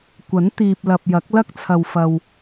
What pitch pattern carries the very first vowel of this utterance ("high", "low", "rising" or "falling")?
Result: rising